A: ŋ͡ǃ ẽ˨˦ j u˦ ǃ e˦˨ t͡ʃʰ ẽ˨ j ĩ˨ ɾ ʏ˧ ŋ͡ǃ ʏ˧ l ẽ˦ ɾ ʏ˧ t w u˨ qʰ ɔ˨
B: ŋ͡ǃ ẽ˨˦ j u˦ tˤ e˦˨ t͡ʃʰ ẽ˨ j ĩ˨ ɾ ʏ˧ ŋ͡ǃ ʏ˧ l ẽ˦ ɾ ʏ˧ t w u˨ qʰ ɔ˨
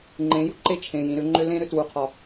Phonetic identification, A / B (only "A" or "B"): A